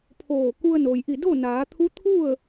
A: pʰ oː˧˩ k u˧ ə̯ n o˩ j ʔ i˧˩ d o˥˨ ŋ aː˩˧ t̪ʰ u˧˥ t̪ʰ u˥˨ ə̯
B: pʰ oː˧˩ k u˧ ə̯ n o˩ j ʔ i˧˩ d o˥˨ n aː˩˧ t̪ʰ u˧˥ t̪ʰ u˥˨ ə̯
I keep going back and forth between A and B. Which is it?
B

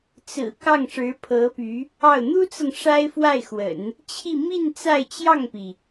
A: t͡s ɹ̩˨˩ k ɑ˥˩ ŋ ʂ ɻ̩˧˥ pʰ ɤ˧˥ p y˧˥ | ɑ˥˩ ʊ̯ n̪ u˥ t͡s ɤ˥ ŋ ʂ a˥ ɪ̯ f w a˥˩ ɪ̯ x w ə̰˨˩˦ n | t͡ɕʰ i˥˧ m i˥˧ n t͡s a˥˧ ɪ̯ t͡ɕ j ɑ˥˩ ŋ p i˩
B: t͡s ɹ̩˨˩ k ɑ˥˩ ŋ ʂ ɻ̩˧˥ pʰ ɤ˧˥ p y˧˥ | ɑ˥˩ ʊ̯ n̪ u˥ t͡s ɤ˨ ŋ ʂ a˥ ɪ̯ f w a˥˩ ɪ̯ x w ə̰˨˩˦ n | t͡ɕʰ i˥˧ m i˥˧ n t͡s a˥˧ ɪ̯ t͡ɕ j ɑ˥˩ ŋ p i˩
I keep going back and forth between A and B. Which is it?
B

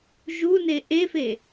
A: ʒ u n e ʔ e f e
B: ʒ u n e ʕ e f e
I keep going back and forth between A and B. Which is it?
A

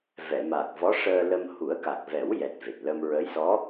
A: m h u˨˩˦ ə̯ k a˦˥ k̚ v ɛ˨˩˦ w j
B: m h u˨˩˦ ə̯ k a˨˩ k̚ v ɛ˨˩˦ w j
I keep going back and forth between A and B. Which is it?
B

